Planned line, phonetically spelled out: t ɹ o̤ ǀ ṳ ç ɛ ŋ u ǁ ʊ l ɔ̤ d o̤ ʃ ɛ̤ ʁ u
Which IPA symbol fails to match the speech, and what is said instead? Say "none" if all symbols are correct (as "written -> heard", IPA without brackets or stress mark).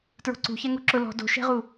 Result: none